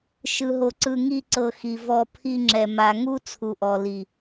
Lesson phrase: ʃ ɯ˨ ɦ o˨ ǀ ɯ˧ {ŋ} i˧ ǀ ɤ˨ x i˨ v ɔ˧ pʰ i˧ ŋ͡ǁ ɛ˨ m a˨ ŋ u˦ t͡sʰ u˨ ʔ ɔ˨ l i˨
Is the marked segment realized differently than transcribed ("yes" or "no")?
no